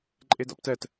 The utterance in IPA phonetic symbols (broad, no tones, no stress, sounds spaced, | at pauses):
ǃʼ e d a̰ p t ɛ t